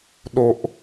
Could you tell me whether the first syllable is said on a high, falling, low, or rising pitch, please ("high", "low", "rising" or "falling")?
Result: low